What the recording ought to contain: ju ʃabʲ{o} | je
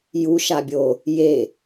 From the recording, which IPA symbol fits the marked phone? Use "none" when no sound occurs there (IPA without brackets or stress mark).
o